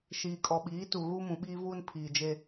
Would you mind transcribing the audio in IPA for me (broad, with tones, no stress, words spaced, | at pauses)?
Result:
ʃiː˨kʼɔ˨ɓiː˨˦tu˨ ɣu˦mũ˨ɓiː˦vuː˦n pʰiː˨d͡ʒe˦